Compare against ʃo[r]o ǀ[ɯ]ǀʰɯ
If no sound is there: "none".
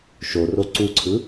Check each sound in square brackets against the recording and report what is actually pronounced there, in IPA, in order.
r, u

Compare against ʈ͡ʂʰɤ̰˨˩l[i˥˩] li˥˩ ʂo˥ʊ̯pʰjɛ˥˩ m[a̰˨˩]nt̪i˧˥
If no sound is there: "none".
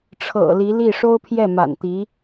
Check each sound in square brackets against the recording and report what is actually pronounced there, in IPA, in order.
i˧˥, a̰˨˩

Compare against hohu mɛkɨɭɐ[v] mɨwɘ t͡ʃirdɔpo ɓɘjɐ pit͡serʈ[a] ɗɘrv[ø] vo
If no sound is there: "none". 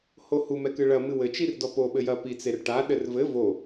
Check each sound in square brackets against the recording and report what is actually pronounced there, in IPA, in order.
none, a, ɘ

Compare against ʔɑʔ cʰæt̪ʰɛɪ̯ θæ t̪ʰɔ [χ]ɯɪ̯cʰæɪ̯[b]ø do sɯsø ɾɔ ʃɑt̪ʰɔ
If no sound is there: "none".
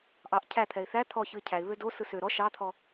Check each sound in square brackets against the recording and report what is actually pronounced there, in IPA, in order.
ç, β

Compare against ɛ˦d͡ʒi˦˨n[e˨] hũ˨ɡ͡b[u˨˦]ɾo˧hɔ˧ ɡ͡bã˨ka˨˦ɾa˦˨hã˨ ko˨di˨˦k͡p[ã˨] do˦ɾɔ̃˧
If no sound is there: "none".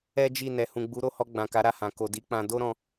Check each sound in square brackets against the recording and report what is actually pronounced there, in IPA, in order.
ɛ˨, u˨˦, ã˧

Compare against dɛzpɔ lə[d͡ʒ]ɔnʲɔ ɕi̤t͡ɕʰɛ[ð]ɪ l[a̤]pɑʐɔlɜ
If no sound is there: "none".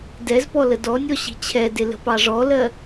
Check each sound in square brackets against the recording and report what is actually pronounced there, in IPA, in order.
d, d, ə̤

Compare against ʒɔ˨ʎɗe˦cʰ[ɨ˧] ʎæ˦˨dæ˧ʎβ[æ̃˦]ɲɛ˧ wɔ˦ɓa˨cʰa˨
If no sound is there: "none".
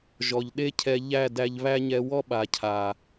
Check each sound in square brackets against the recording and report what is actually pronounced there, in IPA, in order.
ɛ˧, æ˦

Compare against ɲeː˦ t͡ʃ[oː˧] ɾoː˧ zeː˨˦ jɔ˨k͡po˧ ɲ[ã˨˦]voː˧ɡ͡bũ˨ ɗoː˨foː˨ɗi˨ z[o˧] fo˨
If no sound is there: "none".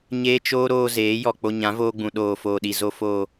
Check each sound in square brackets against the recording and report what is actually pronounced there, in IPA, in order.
oː˦, ã˨˦, o˨

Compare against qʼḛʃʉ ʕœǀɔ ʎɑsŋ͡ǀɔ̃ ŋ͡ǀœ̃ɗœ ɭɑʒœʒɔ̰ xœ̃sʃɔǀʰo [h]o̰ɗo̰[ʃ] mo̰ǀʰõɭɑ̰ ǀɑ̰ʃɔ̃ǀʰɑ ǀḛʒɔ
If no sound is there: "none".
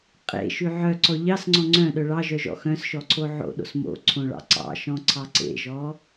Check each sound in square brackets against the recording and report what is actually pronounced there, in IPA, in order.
ʕ, s

